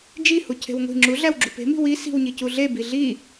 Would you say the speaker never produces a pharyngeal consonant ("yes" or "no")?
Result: yes